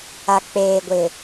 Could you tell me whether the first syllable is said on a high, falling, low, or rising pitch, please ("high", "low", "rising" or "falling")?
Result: low